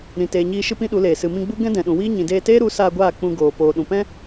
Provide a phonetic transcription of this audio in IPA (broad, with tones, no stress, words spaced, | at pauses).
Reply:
ɾĩ˨teː˨ɲiː˧ʃɨ˦ pĩ˦ɗu˨˦leː˨ sɨ˨mĩ˧ɡ͡bu˦ ɡɛ̃˦dɛ̃˨ɗũ˨wiː˦ ɲĩ˨deː˧teː˦ɾu˨˦ saː˧ɡʷaː˦˨ k͡pũ˧ɡoː˨ poː˨ɗũ˨pɛ̃˦